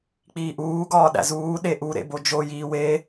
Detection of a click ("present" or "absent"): absent